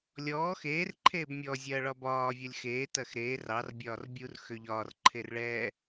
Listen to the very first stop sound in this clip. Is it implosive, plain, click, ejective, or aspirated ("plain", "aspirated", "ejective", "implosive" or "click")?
click